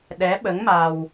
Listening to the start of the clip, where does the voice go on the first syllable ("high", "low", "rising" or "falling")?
rising